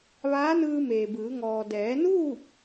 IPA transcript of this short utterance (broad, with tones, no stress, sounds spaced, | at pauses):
ʋ aː˧˥ n ɯː˧ m eː˩ b ɯː˩˧ ŋ ɔː˩ d ɛː˩˧ n uː˥˨ p̚